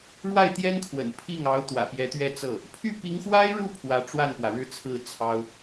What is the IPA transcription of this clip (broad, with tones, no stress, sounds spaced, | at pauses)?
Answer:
ɻ w a˥˩ ɪ̯ t̪ j ɛ˥ n kʰ w ə̰˨˩ n pʰ i˥˩ ŋ ɑ˧˥ ʊ̯ t̪ w ä̰˨˩ p j ɛ˧˥ t̪ ɥ ɛ˥˧ t͡s ɤ˥˩ | pʰ y˥˩ p i˧˥ ŋ x w a˥ ɪ̯ ɻ u˥˩ pʰ w ä˧˥ ʈ͡ʂ w a˥˩ n p w ä˩ ɻ ɻ̩˥˧ t͡sʰ ɹ̩˥˩ t͡sʰ ɑ˥ ʊ̯